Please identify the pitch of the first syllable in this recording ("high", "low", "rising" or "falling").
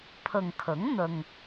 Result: low